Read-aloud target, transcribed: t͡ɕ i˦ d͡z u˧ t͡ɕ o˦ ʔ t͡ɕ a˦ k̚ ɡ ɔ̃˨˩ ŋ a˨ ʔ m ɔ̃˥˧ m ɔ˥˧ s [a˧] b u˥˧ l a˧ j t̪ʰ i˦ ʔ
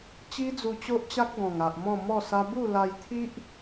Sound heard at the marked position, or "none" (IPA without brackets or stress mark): a˦